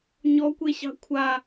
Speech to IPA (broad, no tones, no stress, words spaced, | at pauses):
ɲɔkʷeɕɑ̤ kʷʰa